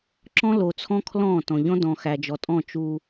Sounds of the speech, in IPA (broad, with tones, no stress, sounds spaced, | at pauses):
ǁ ɔ̃˦ l o˨ t͡sʰ ɔ̃˦ kʰ l ɔ̃˦˨ t ɔ̃˨ ʎ ɔ̃˦ d ɔ̃˨ x æ˨ d͡ʒ ɔ˨ tʼ ɔ̃˦˨ t͡ʃ u˦